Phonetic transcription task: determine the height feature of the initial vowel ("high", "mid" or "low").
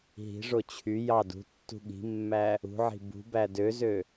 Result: high